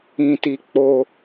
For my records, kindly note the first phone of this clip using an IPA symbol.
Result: ĩ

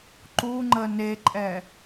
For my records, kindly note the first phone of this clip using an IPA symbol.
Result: ǃ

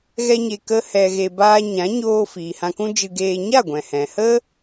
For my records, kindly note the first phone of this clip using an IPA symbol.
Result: ɣ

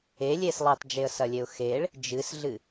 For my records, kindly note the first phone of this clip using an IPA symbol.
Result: e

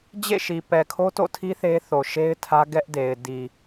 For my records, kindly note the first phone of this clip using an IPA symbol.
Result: d͡ʑ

